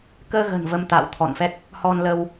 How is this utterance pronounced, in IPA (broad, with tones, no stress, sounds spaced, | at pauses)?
k əː˧ ɣ ə̤˨˩ n v ə˧ m t̪ a̰ː˧˨ w t̪ʰ ɔ̰˧˨ n f ɛ˦˥ k̚ | h ɔ˧ n l ə˧ w